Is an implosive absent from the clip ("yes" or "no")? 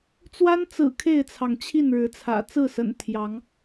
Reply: yes